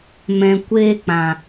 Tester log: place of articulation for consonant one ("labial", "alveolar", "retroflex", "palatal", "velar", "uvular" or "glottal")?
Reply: labial